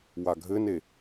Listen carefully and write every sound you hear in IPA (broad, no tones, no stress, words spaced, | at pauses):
waɡʱɘne